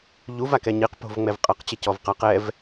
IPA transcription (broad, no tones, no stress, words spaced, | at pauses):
ʎuvakɛ ɲiqpo̤v ŋ͡mɛvqʼɐq t͡ɕɘcɔvqaq ɛv